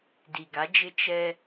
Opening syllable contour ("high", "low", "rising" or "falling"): low